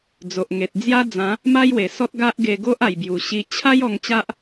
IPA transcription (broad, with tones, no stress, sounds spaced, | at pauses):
d͡z o˨ ʔ ŋ e˨ t̚ d͡z j a˦ d͡z ã˨˦ | m a˦ j w e˨˩ s ɔ˦ t̚ ɡ a˦ ʔ ɡ e˧ ɡ o˦ ʔ a˨˩ j b j u˨˩ ɕ i˧ t͡ɕʰ a˦ j ɔ˧ ŋ t͡ɕ a˦ ʔ